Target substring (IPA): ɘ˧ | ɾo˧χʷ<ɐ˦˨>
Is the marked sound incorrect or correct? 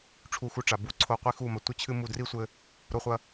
incorrect